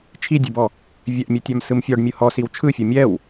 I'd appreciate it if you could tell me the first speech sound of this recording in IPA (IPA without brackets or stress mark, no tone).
t͡ʃʰ